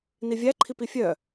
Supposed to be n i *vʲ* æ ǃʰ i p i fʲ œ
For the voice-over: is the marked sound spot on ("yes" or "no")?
yes